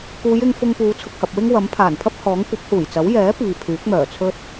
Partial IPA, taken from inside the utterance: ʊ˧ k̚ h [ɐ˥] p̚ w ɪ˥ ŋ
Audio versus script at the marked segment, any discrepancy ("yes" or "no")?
yes